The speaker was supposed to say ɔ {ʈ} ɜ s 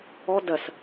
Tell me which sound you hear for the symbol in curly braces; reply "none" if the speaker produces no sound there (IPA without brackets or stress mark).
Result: d